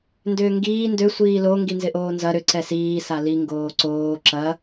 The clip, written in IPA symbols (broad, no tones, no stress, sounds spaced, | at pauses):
n d ʏː ŋ ɡ iː n d ø sʷ iː l o ŋ ɡ i n z ɪ ʔ oː n z ɐ ɾ ʏ ǀ ɛ s iː s a l i ŋ ɡ oː ǀ oː ǁ ɐ